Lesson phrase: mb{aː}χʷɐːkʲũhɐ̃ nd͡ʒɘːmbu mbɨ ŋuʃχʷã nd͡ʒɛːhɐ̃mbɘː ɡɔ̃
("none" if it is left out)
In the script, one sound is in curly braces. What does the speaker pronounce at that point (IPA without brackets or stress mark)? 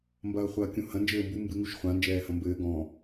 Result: ɐː